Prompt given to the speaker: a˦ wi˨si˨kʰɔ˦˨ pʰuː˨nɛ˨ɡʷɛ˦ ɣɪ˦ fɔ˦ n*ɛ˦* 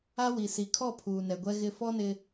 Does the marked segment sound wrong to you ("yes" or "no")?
yes